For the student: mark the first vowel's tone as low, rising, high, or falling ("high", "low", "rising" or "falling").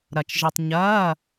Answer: low